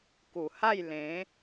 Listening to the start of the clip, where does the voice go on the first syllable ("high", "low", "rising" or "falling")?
low